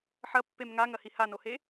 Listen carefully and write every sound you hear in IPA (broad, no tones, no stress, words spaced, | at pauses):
ħɐpːem ŋaŋɐhi hanohe